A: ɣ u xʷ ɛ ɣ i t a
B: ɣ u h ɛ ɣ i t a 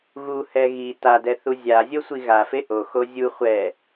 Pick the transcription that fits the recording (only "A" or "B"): B